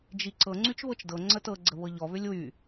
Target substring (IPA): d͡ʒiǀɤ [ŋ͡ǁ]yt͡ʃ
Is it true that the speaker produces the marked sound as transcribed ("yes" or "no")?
no